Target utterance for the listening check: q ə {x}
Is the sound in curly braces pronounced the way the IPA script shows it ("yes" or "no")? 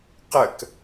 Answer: no